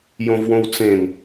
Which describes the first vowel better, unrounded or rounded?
rounded